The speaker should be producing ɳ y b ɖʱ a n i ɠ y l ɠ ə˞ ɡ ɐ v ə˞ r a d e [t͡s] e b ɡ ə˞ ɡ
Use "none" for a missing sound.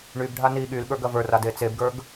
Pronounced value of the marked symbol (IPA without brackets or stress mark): t͡s